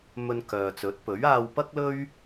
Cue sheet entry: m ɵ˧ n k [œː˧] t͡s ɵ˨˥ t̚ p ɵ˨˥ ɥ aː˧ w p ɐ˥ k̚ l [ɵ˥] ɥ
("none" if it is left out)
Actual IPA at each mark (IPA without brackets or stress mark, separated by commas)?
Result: œː˨, ɵ˥